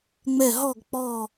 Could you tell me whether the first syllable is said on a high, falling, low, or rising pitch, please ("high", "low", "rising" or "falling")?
falling